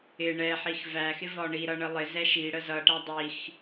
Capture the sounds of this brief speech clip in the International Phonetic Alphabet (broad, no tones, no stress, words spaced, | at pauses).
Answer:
ɪ ɳɛħix væxɪvɒ ɳiɾʌɳə lˠɪzɛʃ iɽə zʌʈæ dˤix